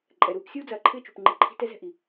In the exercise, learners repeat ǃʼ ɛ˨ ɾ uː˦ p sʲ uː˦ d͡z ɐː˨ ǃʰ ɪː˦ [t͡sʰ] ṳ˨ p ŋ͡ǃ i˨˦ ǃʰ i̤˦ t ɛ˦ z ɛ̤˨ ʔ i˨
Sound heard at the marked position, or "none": t͡ʃ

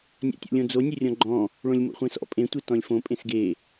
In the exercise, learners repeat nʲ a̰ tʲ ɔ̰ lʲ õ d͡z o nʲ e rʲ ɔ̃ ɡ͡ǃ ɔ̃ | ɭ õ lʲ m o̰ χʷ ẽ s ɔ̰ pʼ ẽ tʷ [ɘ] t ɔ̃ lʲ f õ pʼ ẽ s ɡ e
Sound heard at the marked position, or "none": e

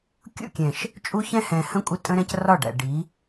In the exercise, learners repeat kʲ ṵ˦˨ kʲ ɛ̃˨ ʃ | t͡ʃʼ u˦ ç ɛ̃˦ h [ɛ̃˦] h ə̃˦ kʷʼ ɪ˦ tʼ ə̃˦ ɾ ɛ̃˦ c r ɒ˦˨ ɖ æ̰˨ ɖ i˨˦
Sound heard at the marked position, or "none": ɛ̃˨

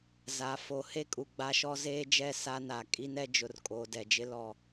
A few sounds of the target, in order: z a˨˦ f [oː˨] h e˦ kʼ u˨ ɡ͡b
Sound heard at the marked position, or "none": o˨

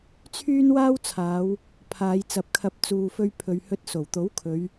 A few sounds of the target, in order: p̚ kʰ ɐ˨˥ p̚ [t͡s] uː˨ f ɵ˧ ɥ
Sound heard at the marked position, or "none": t͡s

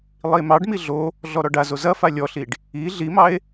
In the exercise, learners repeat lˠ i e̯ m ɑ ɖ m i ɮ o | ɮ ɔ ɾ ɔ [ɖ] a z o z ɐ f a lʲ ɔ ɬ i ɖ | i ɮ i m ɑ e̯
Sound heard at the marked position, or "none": ɖ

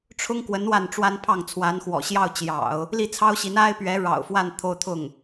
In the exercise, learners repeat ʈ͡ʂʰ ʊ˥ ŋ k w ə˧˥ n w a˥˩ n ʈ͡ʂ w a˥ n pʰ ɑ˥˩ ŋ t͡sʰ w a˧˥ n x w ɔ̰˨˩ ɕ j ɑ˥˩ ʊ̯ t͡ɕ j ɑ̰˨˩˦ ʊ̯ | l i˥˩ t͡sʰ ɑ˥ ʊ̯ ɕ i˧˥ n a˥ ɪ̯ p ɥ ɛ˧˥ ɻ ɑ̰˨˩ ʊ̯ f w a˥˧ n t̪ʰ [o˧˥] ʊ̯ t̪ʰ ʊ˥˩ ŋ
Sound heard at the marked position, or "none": o˥˧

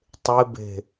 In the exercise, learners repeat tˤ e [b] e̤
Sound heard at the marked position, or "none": b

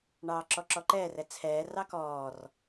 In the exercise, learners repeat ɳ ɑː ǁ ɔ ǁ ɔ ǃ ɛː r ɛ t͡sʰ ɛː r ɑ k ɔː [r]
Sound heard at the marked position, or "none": r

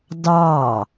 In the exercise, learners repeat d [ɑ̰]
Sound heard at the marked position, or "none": ɑ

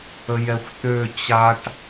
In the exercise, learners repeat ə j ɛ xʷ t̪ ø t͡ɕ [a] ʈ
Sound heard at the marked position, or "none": a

